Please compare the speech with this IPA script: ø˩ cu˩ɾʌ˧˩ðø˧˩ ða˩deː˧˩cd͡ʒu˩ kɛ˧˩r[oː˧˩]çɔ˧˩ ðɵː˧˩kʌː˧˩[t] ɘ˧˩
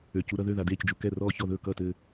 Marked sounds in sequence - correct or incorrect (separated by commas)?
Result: incorrect, correct